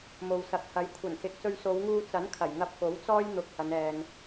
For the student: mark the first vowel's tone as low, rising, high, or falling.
low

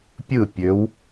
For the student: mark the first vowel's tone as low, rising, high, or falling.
falling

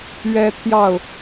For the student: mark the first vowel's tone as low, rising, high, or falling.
high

